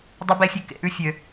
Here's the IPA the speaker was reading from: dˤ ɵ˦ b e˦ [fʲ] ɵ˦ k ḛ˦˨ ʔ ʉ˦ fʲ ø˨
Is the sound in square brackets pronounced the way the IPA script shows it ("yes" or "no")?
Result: yes